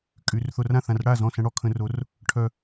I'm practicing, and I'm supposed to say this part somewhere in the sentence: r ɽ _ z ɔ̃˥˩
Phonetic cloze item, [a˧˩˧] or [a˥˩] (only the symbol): a˥˩